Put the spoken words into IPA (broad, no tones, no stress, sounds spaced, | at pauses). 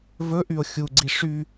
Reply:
v ɵ ʔ y o̯ xʲ u ɡ͡ǀ i ʂ y